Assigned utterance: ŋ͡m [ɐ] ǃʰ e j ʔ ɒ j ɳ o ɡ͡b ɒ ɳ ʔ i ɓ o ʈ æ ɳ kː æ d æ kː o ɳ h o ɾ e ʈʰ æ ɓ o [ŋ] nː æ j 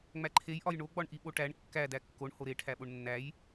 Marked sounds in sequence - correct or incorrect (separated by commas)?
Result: incorrect, incorrect